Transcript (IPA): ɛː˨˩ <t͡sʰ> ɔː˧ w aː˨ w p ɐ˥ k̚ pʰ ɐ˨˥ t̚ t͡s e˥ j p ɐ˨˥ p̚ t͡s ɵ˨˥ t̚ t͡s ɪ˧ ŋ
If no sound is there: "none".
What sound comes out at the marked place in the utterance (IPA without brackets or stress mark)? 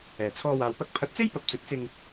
t͡sʰ